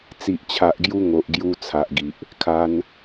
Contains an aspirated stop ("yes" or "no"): yes